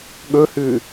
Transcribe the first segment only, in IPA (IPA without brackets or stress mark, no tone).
ɠ